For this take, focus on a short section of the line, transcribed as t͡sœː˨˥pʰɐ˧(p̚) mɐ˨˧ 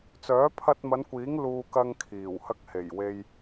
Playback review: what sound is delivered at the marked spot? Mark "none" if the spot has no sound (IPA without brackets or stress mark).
t̚